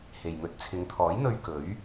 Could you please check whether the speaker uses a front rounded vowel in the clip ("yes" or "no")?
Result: no